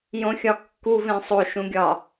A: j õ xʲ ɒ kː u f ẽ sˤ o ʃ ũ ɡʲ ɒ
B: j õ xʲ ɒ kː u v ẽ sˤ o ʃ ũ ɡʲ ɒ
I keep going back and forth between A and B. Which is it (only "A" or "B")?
B